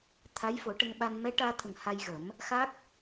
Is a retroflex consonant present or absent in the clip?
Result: present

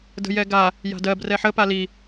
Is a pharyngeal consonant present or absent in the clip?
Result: present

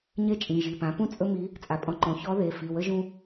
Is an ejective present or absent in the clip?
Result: present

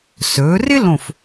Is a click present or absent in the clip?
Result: absent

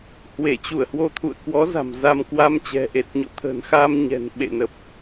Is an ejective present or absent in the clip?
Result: absent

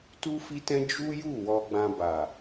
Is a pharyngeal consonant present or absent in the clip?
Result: absent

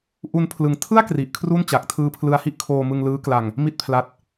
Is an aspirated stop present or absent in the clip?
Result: present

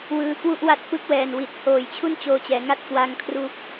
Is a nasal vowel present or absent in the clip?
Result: absent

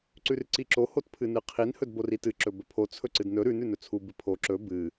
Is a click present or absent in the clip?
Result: present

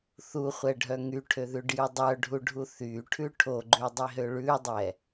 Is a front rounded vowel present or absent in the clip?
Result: present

